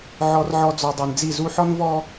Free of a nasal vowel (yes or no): yes